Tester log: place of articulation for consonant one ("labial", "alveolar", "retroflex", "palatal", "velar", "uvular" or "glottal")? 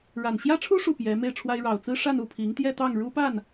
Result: retroflex